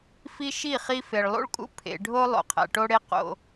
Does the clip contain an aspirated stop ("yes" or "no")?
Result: yes